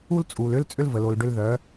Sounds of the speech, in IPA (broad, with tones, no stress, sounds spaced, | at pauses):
u˦ l t͡sʼ u˨ l ʏ˦ l t͡sʼ ʏ˦ l v ə˨ l o˨ l ɖ ʏ˧ l ð œ˨˦